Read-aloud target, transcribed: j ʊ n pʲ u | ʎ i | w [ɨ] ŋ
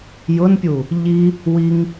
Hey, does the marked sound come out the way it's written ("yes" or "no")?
no